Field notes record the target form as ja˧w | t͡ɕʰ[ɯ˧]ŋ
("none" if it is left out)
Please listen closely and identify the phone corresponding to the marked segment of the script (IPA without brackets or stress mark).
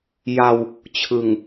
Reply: ɯ˨˩